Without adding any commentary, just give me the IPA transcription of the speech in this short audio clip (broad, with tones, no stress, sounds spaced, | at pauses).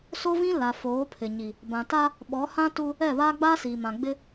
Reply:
s o˦ v ĩ˦ l a˨ f oː˨˦ pʰ ɪ˨ ɲ i˨ | b ã˨ t a˦ | ɓ ɔ˨˦ h ã˦ t u˦ | ɛ˦˨ β aː˦ ɡ͡b aː˦ s iː˨ m ã˨ ɡ͡b ɪ˦